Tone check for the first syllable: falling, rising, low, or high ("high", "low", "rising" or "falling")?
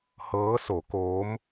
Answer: rising